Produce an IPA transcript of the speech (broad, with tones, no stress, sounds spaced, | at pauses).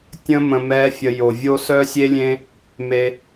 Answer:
tʲ ə̃˧ m ə̃˧ m ɛː˦ fʲ ə˧ j o˨ vʲ o˦ s œ˦ sʲ e˦ lʲ ẽ˦ | m e˧